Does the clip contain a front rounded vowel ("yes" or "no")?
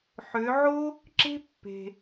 yes